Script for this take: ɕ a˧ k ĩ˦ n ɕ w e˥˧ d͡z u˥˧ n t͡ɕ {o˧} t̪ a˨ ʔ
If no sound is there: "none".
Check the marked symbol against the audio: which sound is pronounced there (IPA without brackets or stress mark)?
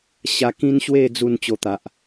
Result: o˧